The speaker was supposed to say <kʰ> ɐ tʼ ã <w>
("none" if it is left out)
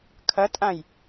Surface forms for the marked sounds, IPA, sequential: kʰ, j

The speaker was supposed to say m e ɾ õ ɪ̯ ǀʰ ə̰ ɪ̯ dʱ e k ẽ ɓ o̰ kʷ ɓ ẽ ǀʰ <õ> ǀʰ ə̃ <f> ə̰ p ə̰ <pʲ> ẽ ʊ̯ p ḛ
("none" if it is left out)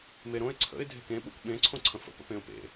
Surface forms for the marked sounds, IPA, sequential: õ, f, p

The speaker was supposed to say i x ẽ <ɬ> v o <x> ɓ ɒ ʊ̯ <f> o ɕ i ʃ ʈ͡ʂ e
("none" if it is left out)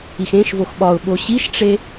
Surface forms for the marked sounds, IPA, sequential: ʃ, x, ɓ

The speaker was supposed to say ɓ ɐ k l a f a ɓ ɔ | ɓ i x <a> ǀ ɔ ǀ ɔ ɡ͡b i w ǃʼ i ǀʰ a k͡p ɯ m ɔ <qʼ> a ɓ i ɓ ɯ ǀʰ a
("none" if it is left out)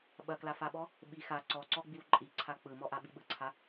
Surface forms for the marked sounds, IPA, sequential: a, ʔ

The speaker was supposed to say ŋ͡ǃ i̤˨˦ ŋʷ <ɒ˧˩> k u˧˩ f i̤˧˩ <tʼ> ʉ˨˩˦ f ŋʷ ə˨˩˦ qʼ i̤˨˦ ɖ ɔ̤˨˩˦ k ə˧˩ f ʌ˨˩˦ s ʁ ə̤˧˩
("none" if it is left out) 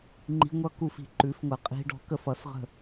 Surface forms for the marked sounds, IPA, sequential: ʌ˧˩, ǃ

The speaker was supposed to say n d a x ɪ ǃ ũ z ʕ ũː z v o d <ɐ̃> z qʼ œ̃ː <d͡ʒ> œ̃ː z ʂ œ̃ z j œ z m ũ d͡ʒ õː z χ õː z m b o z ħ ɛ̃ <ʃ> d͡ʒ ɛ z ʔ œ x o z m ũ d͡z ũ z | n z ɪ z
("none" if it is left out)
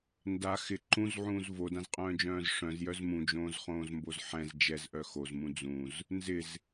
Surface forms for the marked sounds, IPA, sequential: ã, d͡ʒ, z

